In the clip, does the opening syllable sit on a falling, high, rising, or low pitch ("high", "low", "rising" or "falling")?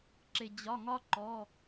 low